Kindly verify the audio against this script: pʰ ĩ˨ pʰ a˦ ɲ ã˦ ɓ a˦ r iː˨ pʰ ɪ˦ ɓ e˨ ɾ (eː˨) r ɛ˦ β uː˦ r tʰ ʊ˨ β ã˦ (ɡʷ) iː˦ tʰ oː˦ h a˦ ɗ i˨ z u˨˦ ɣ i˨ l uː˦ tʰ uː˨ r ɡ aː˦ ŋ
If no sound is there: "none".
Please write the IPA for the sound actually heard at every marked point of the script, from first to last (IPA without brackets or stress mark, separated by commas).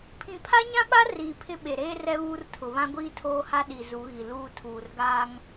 eː˦, ɡʷ